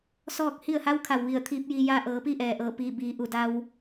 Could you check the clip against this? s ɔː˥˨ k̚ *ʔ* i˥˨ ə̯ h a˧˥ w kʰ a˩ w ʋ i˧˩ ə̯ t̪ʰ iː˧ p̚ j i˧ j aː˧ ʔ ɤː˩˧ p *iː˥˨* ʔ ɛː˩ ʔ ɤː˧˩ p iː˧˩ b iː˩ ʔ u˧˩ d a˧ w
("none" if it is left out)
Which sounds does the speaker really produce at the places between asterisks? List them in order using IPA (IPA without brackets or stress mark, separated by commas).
h, i˥˨